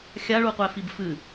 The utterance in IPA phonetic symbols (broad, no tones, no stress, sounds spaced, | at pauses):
xʲ a ɭ u qʷ ɛ f i b f ɨ